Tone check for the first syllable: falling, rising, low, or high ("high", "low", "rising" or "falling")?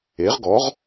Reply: rising